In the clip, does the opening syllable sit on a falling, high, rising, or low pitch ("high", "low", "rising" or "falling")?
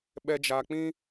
low